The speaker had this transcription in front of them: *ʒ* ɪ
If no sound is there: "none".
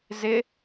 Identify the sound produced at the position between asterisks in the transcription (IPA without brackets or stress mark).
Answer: z